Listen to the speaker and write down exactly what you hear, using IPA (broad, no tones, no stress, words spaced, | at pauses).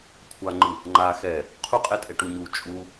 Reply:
kʷʰaŋ͡ǃɯ | ŋ͡ǃa xɛ | qʰuqʼɛtʼɛ ʈuɲu t͡ʃʼu